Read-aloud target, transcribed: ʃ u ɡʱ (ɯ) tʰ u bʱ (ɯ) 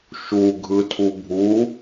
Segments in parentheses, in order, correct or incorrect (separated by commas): correct, incorrect